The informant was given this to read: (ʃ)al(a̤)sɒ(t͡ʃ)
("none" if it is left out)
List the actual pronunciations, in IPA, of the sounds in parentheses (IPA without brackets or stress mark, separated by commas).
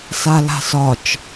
s, a̤, t͡ʃ